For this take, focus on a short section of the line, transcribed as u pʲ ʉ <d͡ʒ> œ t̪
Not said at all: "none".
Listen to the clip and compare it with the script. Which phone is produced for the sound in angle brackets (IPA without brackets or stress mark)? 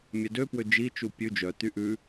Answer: d͡ʒ